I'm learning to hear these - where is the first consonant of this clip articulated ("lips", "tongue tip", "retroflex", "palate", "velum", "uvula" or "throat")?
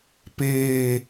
lips